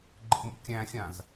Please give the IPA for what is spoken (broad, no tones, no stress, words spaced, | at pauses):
ɡ͡ǃə̰mṵ kʲæ̃xʲãz